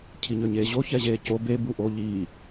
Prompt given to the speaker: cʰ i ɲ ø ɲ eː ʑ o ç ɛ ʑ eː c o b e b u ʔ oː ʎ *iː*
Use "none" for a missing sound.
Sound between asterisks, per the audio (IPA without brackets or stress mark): iː